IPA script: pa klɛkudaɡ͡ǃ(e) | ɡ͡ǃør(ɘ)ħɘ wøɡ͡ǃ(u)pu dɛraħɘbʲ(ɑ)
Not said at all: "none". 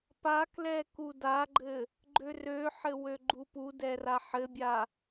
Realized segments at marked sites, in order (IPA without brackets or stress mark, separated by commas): ɘ, ø, u, a